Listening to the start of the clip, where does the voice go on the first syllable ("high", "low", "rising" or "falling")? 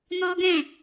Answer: high